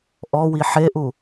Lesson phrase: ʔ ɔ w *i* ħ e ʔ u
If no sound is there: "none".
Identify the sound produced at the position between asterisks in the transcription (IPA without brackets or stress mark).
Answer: i